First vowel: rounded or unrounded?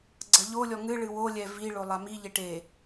unrounded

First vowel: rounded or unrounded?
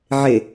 unrounded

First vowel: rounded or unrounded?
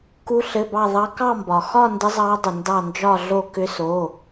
rounded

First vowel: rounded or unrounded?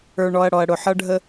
unrounded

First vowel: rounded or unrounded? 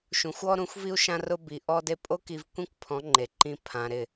rounded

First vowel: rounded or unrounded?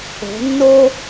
rounded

